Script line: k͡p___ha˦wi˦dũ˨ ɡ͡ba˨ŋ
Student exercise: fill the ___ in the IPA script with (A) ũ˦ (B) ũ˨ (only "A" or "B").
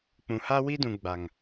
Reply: B